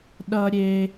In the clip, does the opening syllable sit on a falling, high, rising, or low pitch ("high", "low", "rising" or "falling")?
high